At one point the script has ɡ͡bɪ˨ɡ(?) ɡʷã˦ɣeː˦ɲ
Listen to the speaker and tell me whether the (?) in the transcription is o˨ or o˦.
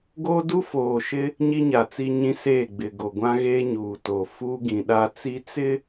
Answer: o˨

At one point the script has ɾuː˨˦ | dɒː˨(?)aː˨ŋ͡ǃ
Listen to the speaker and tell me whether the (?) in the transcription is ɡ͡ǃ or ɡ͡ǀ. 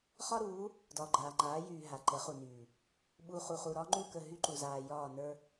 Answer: ɡ͡ǃ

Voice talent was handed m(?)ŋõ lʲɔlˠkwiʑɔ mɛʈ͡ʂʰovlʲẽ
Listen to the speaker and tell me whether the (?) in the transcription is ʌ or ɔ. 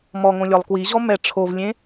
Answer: ɔ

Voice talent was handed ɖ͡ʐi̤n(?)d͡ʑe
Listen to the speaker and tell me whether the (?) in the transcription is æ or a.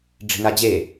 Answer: a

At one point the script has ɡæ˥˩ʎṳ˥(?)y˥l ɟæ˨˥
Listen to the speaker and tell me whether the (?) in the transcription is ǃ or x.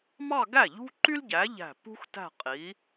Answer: ǃ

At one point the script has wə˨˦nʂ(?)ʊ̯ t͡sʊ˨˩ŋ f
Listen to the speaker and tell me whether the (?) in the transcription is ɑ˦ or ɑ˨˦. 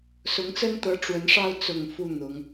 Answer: ɑ˦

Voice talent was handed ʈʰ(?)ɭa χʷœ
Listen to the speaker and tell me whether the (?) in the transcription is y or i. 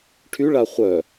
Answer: y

